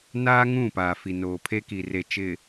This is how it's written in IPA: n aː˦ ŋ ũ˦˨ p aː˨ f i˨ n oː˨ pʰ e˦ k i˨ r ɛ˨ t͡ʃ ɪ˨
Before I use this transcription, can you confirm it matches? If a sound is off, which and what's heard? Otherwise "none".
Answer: ɛ˨ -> e˨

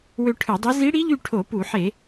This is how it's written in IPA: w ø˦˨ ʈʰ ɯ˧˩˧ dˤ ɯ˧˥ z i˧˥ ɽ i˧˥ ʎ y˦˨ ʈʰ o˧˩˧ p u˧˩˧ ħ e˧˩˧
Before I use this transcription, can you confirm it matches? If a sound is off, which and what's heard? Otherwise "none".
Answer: none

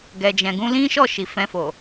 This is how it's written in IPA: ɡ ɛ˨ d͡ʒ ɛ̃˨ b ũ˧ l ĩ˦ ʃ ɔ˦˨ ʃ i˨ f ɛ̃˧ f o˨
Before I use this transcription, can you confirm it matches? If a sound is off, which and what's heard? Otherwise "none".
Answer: b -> ɡ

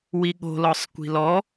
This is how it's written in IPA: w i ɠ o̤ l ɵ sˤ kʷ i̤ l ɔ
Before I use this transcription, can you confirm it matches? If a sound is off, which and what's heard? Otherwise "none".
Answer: ɵ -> ɔ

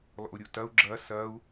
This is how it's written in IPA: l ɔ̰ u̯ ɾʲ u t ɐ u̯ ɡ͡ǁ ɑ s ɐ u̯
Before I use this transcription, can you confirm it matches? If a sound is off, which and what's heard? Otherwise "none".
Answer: ɑ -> ɐ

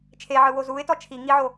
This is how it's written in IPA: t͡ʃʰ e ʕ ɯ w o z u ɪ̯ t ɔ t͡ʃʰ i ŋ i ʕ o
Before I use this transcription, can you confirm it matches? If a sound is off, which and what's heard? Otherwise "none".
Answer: none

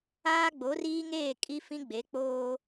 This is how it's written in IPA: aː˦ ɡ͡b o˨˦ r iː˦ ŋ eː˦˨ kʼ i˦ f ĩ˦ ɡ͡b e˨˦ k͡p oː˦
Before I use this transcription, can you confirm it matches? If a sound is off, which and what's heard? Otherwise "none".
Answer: none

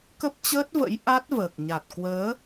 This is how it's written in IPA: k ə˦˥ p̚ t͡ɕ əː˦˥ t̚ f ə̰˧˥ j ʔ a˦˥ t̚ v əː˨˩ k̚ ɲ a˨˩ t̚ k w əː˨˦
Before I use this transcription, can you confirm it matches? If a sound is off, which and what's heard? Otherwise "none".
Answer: f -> v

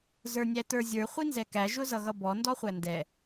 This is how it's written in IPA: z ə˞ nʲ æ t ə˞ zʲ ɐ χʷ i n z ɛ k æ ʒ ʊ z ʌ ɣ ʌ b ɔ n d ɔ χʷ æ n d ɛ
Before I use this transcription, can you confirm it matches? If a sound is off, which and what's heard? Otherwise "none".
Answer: ɐ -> ə˞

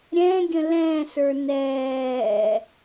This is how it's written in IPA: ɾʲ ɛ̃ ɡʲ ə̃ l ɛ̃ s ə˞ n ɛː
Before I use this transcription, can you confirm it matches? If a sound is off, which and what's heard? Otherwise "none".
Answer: none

